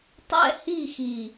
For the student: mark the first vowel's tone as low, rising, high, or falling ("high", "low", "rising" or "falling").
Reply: falling